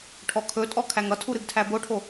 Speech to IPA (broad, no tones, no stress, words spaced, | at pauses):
ʈʰɔkʰɵtʼɔ kʰæŋʌtʰu ɾɨɡtʰæboʈʰo